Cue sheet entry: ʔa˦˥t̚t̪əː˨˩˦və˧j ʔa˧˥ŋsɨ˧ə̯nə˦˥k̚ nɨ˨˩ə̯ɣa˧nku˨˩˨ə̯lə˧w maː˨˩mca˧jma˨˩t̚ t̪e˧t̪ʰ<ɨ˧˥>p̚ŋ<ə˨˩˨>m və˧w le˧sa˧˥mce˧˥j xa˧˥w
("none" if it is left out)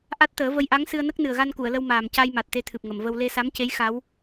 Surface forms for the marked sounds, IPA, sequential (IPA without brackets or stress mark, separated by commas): ɨ˨˩, ə˨˩˨